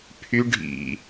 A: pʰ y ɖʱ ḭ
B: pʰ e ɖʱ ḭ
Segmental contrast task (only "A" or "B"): A